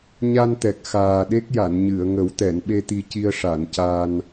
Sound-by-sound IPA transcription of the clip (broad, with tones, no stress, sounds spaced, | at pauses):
ɲ a˧ n t̪ ɛ˨˩ k̚ x aː˨˩ ɗ e˦˥ k̚ j a˨˩˨ n ɲ ɨ˨˩˨ ə̯ ŋ ə˨˩˦ w t̪ ɛ˨˩˨ n ɓ e˧ t̪ i˧ c i˧ ə̯ ʂ a˨˩˨ n c a˧ n